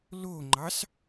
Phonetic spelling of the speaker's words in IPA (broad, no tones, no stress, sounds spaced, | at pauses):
l o ŋ͡ǃ ɑ s